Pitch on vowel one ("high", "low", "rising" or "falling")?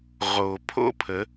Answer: low